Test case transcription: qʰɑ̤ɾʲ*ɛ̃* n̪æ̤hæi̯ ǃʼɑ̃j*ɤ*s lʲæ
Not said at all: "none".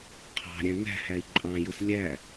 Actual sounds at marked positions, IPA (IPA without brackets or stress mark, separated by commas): æ̃, ɯ